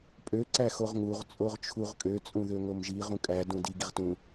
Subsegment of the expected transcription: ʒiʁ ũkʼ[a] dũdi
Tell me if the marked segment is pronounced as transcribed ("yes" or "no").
no